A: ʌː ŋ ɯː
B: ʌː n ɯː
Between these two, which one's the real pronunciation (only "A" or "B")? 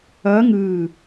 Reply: A